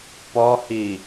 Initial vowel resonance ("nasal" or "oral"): oral